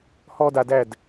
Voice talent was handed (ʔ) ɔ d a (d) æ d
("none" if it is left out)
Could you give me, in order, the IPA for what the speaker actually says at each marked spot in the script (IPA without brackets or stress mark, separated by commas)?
h, d